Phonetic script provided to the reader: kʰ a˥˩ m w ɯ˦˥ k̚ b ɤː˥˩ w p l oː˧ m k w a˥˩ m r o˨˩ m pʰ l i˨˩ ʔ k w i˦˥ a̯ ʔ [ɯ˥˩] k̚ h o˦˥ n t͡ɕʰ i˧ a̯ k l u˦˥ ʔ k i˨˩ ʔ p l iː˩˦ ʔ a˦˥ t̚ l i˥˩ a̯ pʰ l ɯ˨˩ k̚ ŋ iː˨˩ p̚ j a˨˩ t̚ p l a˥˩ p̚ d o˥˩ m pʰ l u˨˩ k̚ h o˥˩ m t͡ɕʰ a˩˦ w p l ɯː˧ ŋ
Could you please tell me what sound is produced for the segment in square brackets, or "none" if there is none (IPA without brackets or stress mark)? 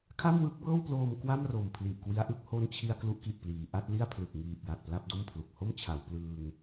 ɯ˥˩